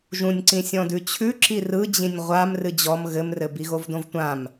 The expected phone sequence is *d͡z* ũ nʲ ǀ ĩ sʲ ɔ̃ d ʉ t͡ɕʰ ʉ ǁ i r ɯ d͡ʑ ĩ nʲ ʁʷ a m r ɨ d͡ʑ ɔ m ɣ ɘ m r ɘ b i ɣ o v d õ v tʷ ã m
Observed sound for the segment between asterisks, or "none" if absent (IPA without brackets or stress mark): ʒ